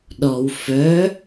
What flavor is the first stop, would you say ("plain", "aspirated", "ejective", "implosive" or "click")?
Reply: implosive